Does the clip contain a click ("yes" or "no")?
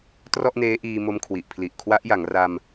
no